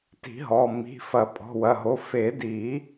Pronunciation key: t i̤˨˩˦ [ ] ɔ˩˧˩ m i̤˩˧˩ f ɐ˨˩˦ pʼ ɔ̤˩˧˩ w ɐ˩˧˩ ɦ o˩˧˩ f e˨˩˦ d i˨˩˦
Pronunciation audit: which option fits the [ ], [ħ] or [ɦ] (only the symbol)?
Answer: ɦ